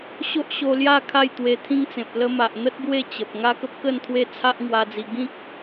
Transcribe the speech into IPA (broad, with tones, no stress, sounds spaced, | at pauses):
ɕ o˦ ʔ ɕ o˧ l j a˥˧ kʰ a˥˧ j t̪ w e˧ t̪ʰ ĩ˦ ŋ t͡s ẽ˨ p̚ l ə˧ m a˨ ʔ n̪ ə˦ t̚ ɡ w e˥˧ t͡ɕ ə˨ p̚ ŋ a˦ k ə˦ p̚ k ə˥˧ n t̪ʰ w e˦ t͡sʰ a˦ ʔ ŋ w a˧ d͡z i˧ ɡ ĩ˦ k̚